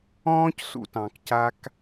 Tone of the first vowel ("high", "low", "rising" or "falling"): high